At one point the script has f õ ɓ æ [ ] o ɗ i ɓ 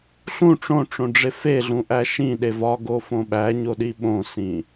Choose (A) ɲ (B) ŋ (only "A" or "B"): A